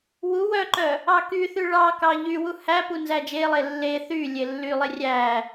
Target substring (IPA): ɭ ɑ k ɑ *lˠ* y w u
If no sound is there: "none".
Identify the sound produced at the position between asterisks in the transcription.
ʎ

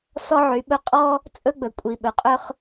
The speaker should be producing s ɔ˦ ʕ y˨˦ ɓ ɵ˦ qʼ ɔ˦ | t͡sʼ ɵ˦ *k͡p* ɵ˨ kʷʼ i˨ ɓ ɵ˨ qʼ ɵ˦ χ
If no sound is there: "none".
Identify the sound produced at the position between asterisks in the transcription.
ɡ͡b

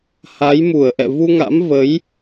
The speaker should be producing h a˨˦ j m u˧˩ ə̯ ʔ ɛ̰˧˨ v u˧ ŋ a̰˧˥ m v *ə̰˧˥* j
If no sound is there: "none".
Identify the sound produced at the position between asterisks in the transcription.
ə˨˦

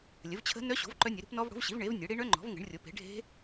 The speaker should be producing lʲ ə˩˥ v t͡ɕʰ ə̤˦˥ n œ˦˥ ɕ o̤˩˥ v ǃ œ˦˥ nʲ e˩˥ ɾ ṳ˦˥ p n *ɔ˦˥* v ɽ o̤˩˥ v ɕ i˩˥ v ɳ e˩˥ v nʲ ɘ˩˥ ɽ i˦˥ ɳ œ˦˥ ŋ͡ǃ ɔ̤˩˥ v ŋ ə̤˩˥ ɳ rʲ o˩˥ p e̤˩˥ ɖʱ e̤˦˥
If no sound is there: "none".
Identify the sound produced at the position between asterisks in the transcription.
ɔ˦˥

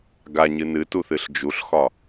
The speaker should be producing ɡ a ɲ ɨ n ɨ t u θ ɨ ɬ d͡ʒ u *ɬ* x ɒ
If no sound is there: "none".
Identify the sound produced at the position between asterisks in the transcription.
ɬ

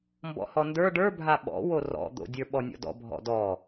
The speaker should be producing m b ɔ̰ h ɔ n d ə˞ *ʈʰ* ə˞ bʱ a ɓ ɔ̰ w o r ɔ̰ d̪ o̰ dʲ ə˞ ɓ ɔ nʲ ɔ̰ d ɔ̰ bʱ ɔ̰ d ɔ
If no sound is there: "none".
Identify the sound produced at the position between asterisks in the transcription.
ɖ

